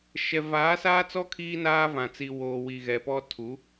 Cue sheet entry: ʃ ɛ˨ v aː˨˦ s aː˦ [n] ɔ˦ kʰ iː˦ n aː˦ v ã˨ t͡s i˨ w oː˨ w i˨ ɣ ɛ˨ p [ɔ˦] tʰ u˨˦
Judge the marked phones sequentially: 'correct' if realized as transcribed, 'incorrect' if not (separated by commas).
incorrect, correct